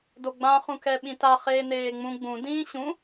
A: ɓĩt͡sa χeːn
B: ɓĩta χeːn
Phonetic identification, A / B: B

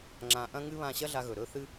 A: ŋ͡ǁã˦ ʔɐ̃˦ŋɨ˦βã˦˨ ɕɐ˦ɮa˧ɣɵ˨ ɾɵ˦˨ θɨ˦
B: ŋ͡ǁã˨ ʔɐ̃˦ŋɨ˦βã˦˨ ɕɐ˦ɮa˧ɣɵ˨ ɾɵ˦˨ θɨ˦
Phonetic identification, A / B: B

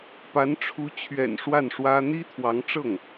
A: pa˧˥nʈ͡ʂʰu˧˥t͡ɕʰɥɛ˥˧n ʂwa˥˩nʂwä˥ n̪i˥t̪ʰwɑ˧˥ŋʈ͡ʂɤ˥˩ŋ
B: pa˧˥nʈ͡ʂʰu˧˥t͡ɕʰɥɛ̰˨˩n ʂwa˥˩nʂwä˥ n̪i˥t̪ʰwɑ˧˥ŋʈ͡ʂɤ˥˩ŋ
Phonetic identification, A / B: B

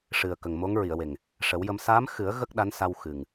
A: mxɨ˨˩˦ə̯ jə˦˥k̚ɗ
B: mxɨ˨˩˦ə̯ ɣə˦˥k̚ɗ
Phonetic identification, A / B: B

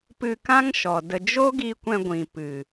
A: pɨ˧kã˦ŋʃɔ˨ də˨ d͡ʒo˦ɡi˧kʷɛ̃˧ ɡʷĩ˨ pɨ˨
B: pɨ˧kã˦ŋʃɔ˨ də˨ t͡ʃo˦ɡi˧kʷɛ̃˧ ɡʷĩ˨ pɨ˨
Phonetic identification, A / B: A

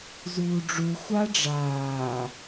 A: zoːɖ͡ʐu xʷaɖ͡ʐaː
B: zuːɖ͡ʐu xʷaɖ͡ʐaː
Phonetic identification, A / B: B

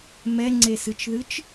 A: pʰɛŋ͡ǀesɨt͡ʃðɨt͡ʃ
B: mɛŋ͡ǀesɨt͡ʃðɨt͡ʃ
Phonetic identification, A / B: B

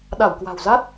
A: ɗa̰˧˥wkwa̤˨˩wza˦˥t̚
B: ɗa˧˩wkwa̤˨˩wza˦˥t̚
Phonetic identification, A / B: B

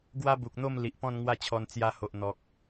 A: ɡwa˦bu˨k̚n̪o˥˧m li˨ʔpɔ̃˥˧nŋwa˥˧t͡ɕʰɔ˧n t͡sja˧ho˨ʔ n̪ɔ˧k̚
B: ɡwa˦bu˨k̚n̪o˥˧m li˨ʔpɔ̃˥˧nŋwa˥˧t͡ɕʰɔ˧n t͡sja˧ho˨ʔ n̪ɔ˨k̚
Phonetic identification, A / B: B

